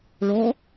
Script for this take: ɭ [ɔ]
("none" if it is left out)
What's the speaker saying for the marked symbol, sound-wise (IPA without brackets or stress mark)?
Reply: ɔ